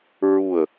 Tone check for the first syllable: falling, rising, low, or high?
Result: low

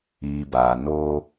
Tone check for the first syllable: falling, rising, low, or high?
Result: low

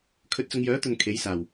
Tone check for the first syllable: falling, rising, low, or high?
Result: rising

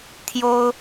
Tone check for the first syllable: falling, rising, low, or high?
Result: high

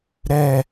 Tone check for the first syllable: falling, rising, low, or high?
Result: falling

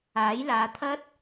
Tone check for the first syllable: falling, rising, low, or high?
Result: rising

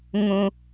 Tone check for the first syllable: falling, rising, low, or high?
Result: low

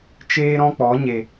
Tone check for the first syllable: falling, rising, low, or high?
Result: high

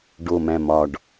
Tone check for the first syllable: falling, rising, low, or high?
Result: low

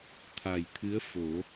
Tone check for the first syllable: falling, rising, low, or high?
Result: low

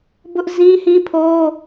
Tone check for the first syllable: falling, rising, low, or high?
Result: high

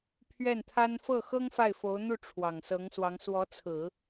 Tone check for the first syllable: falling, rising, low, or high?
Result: falling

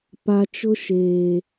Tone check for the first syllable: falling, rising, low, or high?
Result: low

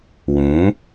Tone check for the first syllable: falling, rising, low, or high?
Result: rising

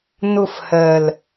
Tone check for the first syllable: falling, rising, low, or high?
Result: falling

